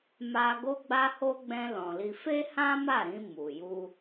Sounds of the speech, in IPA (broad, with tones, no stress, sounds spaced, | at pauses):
m a˧ ɡ o˧ ɡ͡b a˧ h o˧ ɡ͡b ɛ̃˧ l ɔ̃˨ l i˧ f e˦ h ã˦ m a˦˨ ɾ ĩ˧ m u˨ j u˧